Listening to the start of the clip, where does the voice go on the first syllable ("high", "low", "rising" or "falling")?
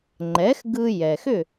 rising